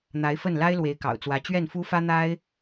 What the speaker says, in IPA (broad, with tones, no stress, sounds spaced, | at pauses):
n̪ a˧˥ ɪ̯ f ə˥˩ n l a˥ ɪ̯ l w e˧˥ ɪ̯ k ɑ̰˨˩ ʊ̯ t͡s w ä˧˥ t͡ɕ ɥ ɛ˥˩ n f u˥ f ä˥ n̪ a˥ ɪ̯